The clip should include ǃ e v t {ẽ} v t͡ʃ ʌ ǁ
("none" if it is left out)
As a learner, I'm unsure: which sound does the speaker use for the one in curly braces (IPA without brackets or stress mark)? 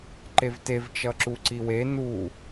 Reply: e